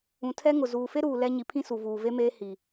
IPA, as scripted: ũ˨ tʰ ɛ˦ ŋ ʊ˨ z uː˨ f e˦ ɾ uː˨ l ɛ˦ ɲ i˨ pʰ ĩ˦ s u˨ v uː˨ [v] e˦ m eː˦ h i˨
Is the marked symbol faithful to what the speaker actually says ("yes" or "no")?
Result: yes